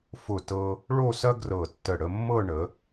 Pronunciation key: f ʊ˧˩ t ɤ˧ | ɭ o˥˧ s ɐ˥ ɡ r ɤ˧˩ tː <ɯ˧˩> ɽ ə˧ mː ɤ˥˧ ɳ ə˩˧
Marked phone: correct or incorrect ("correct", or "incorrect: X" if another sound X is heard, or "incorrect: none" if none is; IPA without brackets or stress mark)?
incorrect: ə˧˩